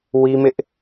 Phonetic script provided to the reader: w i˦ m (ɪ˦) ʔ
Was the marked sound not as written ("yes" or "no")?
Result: no